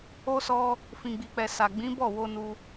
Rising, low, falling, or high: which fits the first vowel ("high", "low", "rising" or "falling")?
high